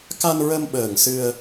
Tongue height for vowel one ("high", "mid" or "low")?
low